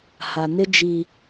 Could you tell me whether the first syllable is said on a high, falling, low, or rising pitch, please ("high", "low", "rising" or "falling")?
low